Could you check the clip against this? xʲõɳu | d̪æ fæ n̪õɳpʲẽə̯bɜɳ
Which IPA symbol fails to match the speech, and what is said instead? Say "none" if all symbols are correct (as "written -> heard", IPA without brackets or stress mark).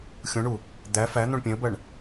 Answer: none